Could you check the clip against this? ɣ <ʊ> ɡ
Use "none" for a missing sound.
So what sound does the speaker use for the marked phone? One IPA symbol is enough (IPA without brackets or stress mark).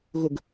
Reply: ʊ